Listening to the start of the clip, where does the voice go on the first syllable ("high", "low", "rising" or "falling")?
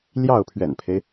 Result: falling